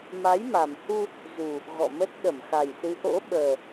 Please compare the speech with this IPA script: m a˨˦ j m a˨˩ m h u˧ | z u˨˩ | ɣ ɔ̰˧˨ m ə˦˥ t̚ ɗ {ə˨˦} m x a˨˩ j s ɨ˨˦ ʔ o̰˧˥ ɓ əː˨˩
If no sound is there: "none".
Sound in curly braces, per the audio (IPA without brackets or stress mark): ə˧˩